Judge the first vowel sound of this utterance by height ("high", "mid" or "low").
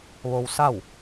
mid